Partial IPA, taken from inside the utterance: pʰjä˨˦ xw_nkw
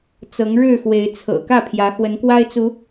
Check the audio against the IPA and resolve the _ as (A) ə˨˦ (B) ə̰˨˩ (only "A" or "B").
A